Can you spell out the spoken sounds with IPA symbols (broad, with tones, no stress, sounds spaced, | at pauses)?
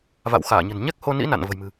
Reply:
v a̰˧˨ w x aː˧˩ ɲ ə̤˨˩ n ɲ ɛ˦˥ k̚ h o˧ n ḭ˧˥ n a̰˧˨ n v ə̤˨˩ j m ɨ̤˨˩